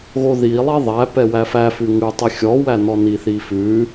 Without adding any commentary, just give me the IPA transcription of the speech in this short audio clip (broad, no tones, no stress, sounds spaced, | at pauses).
ɣ o ð i lˠ i ðˤ æ p ɛ w æ f æ f ʉ ŋ ʉ tˤ i xʲ ɔ w æ n ɔ n i θ i f ʉ